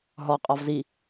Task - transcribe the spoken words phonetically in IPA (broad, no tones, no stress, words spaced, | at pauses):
ɦɔqʼɒv zi